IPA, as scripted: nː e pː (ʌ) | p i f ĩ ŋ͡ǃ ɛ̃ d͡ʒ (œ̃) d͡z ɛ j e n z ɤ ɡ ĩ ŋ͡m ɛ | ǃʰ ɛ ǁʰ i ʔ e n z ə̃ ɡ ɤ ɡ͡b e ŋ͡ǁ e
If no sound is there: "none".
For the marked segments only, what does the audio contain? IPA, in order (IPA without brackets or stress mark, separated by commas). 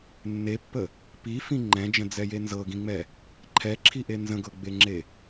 ə, ə̃